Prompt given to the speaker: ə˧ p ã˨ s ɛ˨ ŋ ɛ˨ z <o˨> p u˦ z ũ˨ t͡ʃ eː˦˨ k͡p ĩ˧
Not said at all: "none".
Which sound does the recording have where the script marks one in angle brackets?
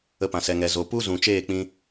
o˨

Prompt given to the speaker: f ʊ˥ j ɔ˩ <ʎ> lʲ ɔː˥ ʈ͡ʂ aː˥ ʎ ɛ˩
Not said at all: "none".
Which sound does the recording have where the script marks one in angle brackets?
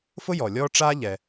none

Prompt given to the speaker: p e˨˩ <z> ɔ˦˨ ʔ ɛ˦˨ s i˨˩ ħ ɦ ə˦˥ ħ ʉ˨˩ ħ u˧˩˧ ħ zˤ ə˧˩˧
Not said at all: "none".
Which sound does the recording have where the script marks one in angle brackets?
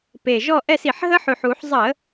ʒ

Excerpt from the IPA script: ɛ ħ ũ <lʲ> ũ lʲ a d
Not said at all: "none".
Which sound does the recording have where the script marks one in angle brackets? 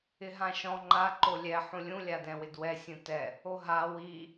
lʲ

